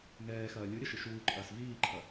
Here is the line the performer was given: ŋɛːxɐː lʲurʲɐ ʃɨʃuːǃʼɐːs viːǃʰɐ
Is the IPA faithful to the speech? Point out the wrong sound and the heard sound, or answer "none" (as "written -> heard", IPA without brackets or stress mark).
rʲ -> ɾʲ